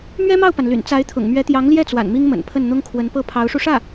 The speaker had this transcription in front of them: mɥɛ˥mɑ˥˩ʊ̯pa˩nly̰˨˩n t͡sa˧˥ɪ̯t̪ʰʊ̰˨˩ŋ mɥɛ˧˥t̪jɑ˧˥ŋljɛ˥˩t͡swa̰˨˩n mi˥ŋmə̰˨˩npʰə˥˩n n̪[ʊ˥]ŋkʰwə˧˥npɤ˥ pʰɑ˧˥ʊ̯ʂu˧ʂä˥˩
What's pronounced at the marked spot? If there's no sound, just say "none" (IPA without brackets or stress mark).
ʊ˥